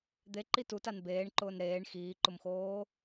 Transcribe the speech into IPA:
d̪eǃi tutan beːɳǃʊːn ɾeːɳ xiːǃʊmxoː

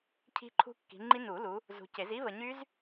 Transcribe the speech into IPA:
cʰi̤˦˥ǃʰṳ˦˥kːi̤˨˦ŋ͡ǃi˦˥ nu˨˩˦lu˨˦ | zṳ˨ce˨˩˦z i˦˥ βə˨ɲy˦˥z

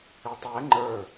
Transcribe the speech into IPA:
ɪtˤɛ ŋ͡ǃə˞

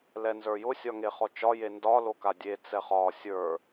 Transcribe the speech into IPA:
lɛnzə˞jʊ sʲɒŋeχɔt͡ʃɒ jendɒ lokadʲe t͡sɛχɒ sʲə˞

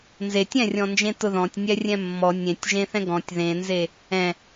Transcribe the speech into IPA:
nzetʲ ɛ̃rʲɔ̃nd͡ʒẽ tʊðɔ̃tʲ nʲɛrʲɛ̃mːɔ nʲẽtʲʒẽθɛ̃ ɡɔ̃tʲ ðẽnze | ɛ̃

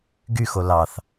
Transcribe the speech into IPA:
ɡyxo lɑθ

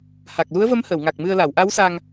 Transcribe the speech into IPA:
ha˨˩k̚lu˧˥ə̯və˧˥m həː˨˩˨wŋa˨˩k̚mɨ˧ə̯ la˨˩˨wʔa˧˥wsa˧ŋ

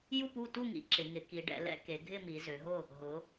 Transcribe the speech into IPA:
ju˥˨pu˥˨tu˥˨ŋḭ˩˧ ǁɪ˩˧ŋɪ˩˧ ki˩˧ɖɛ̰˩˧lɛ̰˥˨ ke˩˧ ɡʱɪ˥˨mi˩˧ zø˩˧ɦʊ˥˨ | ɦʊ˩˧

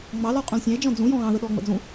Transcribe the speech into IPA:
ŋ͡mɑlɔ qʼũlsʲɑ̃e̯d͡ʒɔ̃ d͡zũjɔ̃ ɣɑ̃ðəɗɔː ŋ͡mə̰d͡zũ

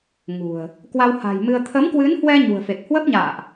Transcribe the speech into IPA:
ŋṳ˨˩ə̯ | kwa˧wha̤˨˩jmɨ˧ə̯ t̪ʰə˨˦mkwɨ˨˦nhwɛ˧ ɲṳ˨˩ə̯fe˨˩k̚ hwə˦˥p̚ɲa̰ː˧˨ʔ

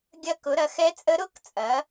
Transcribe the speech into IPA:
ɡʲɐ˦˥kʊ˨˦ɾɐ˨˦ xɛ˦˥t͡sʼə˦˥ ɾʊ˦˥k t͡sʼɐ˨˦

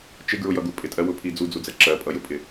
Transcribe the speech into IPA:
t͡ʃɪɡɹʊjʌɡu pʼɪtʼɜwʊpʰi d͡zud͡zud͡zɛ ǁɜpʼʌjʊpʼɪ

